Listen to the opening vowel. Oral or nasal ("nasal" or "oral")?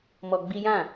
oral